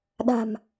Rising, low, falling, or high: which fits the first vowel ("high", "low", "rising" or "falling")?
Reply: low